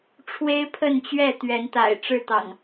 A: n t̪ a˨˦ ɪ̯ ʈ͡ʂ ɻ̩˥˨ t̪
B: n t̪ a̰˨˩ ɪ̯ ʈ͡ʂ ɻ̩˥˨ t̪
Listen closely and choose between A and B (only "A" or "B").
B